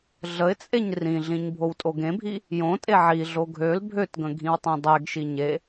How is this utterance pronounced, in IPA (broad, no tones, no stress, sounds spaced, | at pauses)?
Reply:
ɮ ə ɪ̯ t͡sʼ e ɲ r ĩ ɮ ĩ ɲ bʱ o w tʼ o ɡ ẽ bʱ i | j õ tʼ e ʕ i ɮ o ɡʱ ø l bʱ ø t ɡ ə̃ ɡʱ ĩ w tˤ ĩ dˤ ɛ ɡ ʃ i ɲ e